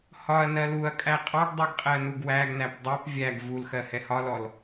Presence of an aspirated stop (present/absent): absent